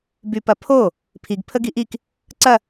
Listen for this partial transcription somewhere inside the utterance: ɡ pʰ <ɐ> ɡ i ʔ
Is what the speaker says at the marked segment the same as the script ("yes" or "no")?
no